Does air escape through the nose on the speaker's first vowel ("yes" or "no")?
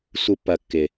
no